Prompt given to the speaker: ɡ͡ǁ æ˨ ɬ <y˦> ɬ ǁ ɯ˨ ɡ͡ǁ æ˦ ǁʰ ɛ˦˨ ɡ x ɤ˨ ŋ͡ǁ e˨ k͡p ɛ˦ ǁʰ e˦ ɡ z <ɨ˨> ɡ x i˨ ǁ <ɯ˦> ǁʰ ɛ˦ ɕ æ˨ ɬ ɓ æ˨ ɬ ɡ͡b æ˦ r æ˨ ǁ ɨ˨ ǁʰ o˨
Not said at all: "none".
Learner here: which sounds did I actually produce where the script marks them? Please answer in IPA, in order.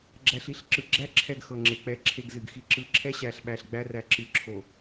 i˦, ɨ˨, ɯ˨

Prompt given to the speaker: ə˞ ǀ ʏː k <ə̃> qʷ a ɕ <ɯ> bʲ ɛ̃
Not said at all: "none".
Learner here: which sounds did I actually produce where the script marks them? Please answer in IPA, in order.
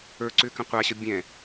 ə̃, ə

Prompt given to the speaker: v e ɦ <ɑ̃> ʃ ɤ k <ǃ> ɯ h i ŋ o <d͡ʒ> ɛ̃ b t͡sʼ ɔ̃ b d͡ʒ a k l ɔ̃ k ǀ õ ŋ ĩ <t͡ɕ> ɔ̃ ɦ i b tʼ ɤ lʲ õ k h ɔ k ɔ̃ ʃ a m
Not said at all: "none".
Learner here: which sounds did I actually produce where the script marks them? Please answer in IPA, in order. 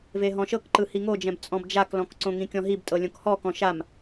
ɔ̃, ǃ, d͡ʒ, kʲ

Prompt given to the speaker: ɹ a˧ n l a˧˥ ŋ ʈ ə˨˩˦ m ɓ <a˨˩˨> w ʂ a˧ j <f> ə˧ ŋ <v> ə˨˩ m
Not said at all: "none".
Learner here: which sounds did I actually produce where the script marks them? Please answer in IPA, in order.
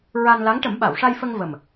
a˨˩˨, f, v

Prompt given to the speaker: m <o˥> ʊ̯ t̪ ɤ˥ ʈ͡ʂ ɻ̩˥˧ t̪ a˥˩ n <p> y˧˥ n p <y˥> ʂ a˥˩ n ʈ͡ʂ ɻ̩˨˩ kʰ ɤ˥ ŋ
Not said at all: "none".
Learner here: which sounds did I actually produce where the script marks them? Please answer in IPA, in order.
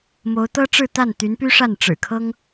o˧˥, t̪, y˥

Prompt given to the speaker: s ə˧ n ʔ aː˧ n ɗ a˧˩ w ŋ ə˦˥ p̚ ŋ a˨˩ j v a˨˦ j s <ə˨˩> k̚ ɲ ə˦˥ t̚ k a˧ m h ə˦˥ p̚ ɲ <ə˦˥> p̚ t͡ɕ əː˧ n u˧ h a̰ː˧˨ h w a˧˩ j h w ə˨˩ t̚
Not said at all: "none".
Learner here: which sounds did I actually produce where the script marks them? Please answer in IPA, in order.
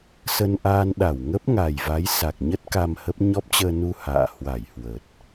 a˨˩, ɔ˦˥

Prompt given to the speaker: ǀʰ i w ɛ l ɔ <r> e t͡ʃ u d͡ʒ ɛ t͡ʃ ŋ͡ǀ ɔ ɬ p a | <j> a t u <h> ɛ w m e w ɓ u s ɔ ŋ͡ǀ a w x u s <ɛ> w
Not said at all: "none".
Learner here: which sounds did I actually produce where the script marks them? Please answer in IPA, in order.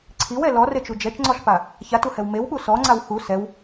r, ç, h, ɛ

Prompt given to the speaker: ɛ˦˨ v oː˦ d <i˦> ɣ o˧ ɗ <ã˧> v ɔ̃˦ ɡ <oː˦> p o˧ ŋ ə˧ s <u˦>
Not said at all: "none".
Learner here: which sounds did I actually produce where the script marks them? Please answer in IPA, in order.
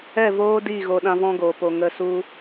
i˦˨, ã˧, oː˨, u˦

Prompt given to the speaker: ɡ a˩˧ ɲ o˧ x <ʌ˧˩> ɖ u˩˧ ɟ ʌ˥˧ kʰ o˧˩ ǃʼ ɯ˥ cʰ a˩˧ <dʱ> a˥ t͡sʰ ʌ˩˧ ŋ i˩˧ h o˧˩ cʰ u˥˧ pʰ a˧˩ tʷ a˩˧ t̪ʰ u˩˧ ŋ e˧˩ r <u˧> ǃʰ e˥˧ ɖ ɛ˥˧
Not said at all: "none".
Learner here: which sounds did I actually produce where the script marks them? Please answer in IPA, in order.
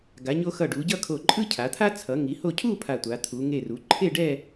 ʌ˧˩, t̪ʰ, u˩˧

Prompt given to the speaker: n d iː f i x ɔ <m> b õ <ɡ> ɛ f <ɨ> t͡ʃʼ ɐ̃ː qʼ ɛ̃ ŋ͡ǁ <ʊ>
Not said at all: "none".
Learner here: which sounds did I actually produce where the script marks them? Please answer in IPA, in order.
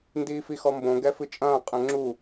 m, ɡ, ɨ, u

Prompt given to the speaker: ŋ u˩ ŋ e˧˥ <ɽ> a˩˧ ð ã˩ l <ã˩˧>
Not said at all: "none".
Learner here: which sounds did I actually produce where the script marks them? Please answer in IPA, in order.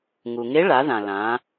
ɭ, ã˩˧

